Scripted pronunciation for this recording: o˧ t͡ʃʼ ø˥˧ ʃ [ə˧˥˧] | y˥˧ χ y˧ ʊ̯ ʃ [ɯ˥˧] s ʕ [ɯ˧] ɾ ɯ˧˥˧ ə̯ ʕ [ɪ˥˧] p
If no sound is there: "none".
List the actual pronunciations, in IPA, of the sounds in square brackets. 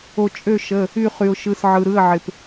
ə˧˥˧, ɯ˧˥˧, ɯ˧, ɪ˧

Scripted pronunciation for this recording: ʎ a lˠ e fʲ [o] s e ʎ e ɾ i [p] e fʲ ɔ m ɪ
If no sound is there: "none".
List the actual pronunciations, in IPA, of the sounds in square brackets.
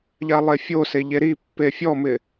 o, pː

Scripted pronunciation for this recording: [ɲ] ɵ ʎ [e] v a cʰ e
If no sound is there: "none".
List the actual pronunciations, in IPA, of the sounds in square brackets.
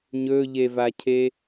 ɲ, e

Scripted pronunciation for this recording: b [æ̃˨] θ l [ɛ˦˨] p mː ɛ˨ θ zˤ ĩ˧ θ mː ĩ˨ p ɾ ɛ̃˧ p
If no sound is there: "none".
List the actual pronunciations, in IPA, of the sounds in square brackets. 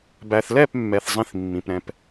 æ˨, ɛ˦˨

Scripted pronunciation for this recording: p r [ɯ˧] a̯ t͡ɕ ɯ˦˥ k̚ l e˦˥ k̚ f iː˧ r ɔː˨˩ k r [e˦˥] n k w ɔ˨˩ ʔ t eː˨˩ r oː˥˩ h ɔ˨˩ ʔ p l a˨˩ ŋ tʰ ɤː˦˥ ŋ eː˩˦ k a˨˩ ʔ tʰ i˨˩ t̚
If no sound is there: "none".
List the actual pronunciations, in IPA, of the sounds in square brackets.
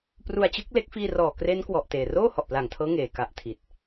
u˧, e˦˥

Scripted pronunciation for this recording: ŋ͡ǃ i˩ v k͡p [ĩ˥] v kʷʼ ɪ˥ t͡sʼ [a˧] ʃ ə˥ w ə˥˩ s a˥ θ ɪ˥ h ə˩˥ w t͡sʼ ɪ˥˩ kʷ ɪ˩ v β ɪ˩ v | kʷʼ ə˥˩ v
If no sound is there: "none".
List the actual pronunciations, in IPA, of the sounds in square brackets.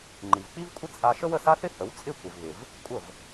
i˥, a˧

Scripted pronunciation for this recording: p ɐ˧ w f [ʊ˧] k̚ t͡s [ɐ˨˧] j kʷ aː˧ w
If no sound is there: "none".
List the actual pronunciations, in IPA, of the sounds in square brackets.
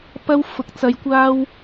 ʊ˨˥, ɐ˨˧

